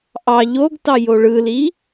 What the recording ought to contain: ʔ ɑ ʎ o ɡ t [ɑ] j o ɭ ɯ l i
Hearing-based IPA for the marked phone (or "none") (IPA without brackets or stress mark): ɑ